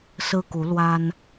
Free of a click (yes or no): yes